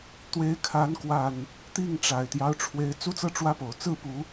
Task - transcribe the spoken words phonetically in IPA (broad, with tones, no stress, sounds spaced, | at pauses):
t̪ w e˨˦ ɪ̯ kʰ a˨˦ n k w a˨˩ n | t̪ i˥˨ ŋ ʈ͡ʂ a˨˩ ɪ̯ t̪ j ɑ˦ ʊ̯ ʈ͡ʂʰ w e˨˦ ɪ̯ t͡s u˦ t͡s ɤ˥˨ ʈ͡ʂ w ä˦ p o˨˩ ʊ̯ t͡s ɹ̩˥˨ p u˨˦